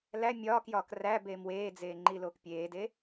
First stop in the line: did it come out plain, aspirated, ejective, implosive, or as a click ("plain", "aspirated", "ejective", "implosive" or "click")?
plain